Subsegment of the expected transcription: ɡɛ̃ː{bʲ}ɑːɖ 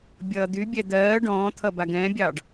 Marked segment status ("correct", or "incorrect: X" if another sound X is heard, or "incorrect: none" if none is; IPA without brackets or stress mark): correct